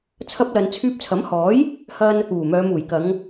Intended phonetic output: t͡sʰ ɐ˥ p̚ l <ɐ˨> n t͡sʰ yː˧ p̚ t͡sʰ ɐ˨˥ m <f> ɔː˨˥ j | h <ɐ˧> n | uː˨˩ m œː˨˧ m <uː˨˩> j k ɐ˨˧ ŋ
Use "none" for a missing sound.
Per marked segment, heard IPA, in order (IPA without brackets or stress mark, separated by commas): ɐ˨, h, ɐ˧, uː˨˩